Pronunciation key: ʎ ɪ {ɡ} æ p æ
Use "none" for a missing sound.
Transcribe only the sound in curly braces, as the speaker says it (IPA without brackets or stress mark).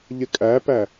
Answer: kʼ